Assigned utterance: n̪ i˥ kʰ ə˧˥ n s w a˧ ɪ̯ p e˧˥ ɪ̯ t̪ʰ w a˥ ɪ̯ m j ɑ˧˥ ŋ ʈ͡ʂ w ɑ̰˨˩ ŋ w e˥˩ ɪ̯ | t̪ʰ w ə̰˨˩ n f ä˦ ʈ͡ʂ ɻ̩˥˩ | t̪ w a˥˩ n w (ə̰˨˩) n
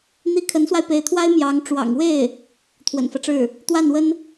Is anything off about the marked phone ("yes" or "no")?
yes